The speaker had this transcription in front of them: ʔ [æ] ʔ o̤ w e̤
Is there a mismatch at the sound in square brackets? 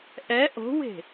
yes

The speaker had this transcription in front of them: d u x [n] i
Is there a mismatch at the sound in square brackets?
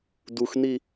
no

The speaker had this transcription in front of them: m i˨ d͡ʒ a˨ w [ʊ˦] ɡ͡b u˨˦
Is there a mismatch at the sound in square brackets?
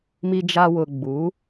yes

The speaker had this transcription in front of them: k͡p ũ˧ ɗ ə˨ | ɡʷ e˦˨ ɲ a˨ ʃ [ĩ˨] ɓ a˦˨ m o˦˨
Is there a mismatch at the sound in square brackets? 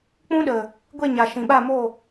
no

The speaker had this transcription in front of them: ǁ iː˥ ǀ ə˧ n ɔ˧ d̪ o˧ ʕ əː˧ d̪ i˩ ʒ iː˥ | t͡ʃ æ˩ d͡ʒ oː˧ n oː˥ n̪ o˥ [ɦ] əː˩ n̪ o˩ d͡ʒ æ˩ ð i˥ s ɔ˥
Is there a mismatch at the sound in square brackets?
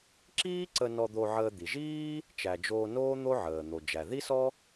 yes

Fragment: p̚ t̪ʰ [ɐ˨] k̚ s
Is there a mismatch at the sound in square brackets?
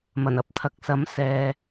no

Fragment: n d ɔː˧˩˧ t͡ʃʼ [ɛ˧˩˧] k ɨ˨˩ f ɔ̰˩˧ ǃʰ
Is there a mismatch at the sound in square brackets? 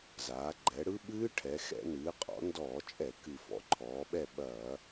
no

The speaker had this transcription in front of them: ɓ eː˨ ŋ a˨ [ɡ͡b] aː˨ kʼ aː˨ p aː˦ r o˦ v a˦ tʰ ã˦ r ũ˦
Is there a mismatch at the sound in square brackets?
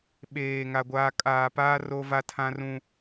yes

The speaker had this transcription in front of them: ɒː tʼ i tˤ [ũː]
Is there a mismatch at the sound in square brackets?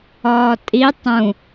yes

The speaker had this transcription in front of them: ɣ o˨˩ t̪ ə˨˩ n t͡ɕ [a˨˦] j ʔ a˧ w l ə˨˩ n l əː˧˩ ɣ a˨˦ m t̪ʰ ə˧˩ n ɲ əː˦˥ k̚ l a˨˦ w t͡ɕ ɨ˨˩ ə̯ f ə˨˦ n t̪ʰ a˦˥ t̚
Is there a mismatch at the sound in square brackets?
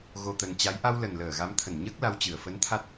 no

